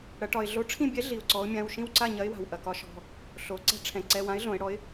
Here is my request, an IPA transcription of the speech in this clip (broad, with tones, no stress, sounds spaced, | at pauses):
ɽ ɐ˩˧ ʈ ɒ˩ ɪ̯ ɮ o˨˥ ʈ͡ʂʰ ĩ˥˨ bʲ ɛ˨˥ ɮ i˩ ʊ̯ ǀ ɔ˩˧ ʊ̯ mʲ ã˩˧˩ w ʃ ĩ˥˨ w ǀ a˥˨ ɲ ɐ˨˥ ɪ̯ w a̤˩ w ʔ ɐ˩ k ɒ˨˥ ʃ ɔ̤˩˧˩ | ɬ o˩˧ ǀ ɛ̤˦ ʈ͡ʂʰ ɛ̃˩ ǀ ɛ˩˧˩ w ã˨˥ ɪ̯ ɮ õ˩˧ ɪ̯ ɽ ɔ˨˥ ɪ̯